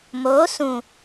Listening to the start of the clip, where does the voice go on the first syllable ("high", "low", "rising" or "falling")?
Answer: rising